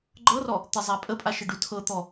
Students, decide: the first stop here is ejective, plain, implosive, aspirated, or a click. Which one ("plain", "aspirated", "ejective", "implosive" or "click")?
click